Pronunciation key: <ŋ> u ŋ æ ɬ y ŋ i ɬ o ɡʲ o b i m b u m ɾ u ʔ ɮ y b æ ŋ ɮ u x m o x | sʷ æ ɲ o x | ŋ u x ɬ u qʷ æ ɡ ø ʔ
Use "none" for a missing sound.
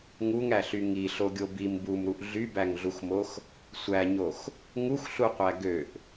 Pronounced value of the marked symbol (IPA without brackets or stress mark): ŋ